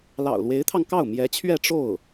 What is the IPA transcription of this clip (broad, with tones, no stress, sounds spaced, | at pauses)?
l ɑ̰˨˩ ʊ̯ l w e˧˥ ɪ̯ t̪ʰ ɑ˧ ŋ k ɑ˥˩ ʊ̯ m j ɛ˧˥ t͡ɕʰ ɥ ɛ˥˧ ʈ͡ʂ o˥˩ ʊ̯